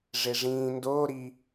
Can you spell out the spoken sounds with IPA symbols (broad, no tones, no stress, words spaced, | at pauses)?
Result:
ʐeʐĩː ndoː ɾi